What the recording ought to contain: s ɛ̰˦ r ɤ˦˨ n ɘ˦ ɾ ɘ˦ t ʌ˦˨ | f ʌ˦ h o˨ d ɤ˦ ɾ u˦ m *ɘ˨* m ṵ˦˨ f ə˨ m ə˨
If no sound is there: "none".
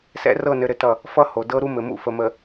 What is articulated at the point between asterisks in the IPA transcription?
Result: ɘ˨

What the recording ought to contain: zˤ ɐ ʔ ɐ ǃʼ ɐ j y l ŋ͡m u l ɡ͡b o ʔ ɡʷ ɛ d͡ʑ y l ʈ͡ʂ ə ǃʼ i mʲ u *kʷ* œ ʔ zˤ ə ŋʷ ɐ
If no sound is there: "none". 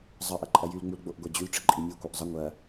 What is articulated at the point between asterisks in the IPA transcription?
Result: kʷ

